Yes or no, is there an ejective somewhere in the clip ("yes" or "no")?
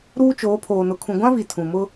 no